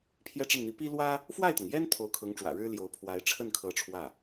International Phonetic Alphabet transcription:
pʰ j ɛ˥˧ ʈ͡ʂ ə˥˩ n n̪ i˧˥ p i˥ l w ä˥ | f w a˥˩ ɪ̯ t̪ ɤ˩ ŋ j ɛ˥ n t̪ʰ o˧˥ ʊ̯ kʰ ɤ˧˥ ŋ ʈ͡ʂ w ä̰˨˩ ɻ ɻ̩˥ l j o˧˥ ʊ̯ pʰ w a˧˥ ɪ̯ ʈ͡ʂʰ ə˥˩ n kʰ ɤ˧˥ ʈ͡ʂʰ w ä˥˩

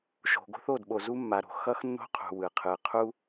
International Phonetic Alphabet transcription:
ʃ o̤˨ ɡ o̤˦ θ o˦˨ d ɓ o˨ z u˦ mː a˨ ɾ o̤˨ x ʌ˦ x nː o̤˦ qʰ ṳ˨ w ɯ˨ qʰ ɯ˨ qʰ u˦

